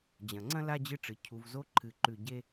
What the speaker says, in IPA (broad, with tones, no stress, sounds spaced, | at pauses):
d͡ʑ ɐ̃˩ ŋ͡ǀ ɐ̃˥ l a˥ d͡ʑ ɨ˦ ʈ͡ʂ ɨ˩ cʰ u˨ v z o˥ ǃʰ ɨ˨ ǃ ʉ˨ ɟ e˥